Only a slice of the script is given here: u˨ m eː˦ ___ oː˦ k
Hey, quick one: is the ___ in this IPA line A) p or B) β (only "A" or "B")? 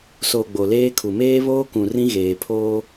B